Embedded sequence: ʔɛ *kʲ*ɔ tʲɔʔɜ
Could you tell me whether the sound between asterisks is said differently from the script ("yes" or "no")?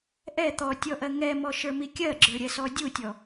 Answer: yes